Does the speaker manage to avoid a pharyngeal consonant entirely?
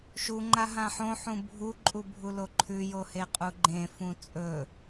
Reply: no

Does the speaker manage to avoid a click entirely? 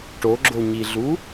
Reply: no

